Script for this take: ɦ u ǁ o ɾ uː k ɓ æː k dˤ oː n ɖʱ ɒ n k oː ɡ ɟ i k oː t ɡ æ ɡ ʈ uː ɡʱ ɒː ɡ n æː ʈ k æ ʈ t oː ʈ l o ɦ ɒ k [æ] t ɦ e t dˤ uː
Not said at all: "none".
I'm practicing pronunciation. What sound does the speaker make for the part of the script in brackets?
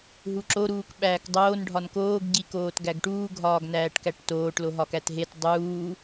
æ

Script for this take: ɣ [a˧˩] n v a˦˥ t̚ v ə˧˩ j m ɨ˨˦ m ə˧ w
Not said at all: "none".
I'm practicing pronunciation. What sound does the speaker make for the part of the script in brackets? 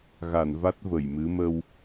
a˧˩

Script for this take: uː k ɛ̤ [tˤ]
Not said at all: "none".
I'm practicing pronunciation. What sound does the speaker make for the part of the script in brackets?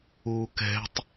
tˤ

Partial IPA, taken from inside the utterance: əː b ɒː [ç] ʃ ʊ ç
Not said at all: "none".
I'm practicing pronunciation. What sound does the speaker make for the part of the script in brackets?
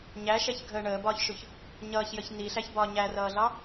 ç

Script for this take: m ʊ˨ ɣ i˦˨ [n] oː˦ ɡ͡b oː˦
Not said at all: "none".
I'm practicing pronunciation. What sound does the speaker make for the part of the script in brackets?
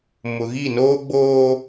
n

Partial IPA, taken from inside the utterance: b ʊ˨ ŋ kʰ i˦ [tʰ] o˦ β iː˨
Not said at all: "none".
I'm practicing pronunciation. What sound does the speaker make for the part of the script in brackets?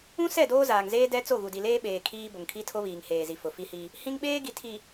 tʰ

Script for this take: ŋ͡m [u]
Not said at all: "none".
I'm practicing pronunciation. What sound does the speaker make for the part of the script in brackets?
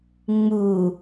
u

